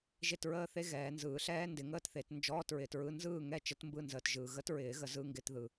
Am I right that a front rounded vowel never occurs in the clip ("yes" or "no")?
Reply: yes